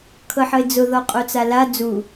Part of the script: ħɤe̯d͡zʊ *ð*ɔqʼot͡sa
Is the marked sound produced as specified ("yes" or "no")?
yes